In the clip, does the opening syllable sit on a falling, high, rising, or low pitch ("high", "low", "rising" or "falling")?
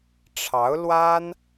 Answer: rising